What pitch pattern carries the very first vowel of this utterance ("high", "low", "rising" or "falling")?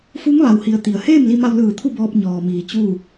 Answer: rising